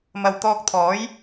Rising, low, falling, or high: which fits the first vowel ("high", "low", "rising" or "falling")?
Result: low